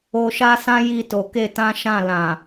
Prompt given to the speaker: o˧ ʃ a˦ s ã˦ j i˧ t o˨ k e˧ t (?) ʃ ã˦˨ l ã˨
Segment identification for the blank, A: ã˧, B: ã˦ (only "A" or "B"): B